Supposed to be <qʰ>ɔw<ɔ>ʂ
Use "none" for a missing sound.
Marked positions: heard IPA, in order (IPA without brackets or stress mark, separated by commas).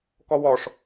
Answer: k, ɔ